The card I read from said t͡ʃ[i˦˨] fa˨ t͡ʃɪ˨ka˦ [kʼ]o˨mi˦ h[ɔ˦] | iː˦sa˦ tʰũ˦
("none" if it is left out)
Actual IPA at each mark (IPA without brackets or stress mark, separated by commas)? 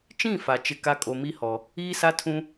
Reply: ĩ˦˨, kʼ, ɔ˨